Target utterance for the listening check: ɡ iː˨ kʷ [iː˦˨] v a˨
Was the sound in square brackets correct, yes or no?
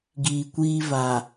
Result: no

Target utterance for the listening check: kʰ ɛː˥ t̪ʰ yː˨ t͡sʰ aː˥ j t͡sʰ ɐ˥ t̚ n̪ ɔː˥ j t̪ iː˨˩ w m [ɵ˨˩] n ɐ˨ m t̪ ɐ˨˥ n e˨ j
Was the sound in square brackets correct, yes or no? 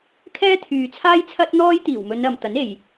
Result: no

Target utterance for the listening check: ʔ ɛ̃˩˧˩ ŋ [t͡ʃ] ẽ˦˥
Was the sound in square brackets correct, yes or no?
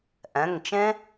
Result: yes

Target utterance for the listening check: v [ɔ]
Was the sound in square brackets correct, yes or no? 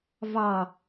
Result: no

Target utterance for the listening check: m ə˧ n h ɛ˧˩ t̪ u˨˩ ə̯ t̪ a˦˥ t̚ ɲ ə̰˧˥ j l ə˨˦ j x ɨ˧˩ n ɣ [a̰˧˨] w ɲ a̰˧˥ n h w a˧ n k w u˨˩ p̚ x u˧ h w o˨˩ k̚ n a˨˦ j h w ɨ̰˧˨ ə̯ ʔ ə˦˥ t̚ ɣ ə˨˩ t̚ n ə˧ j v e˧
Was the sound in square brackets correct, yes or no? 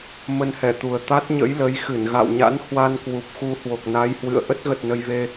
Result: yes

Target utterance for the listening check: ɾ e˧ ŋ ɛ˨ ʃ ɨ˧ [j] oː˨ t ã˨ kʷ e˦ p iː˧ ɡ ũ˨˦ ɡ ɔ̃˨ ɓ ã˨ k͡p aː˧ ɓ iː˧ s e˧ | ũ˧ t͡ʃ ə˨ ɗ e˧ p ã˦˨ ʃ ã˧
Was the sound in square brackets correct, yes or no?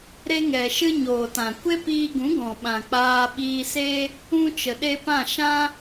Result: no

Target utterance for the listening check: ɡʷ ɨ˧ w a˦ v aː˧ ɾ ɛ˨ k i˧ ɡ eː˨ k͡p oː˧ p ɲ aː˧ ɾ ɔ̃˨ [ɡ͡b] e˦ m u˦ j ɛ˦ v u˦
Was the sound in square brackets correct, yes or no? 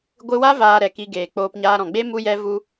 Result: yes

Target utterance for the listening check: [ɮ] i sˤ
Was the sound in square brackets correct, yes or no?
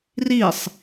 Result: no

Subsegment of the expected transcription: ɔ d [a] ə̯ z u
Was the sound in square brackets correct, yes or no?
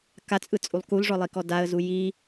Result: yes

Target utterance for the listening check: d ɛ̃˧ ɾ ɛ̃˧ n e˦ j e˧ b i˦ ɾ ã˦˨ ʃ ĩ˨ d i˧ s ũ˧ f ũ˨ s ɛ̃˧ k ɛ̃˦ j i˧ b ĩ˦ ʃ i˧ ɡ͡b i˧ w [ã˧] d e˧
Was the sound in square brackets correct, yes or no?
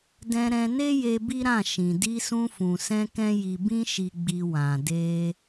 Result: no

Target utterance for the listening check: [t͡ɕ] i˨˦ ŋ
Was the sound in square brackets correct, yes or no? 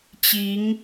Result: yes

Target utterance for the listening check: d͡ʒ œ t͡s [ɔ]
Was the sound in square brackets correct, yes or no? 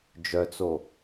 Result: no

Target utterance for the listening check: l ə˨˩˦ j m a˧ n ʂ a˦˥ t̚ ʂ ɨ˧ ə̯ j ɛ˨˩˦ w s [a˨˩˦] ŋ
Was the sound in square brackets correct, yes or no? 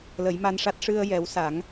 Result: yes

